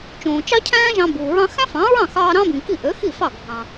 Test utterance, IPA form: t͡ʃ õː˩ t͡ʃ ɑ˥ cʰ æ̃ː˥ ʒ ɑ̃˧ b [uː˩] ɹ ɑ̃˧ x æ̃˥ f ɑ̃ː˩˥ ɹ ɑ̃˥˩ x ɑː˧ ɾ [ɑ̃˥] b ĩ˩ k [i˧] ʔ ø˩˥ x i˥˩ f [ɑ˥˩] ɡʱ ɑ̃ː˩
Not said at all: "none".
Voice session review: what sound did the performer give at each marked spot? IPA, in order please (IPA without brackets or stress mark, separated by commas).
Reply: uː˩, ɑ̃˥, i˥˩, ɑ˥˩